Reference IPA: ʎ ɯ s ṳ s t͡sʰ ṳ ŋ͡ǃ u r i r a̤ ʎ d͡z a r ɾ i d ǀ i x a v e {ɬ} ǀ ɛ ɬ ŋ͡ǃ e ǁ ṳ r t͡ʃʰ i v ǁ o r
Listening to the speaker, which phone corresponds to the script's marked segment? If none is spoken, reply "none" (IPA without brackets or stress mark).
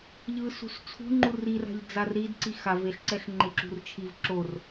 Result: ɬ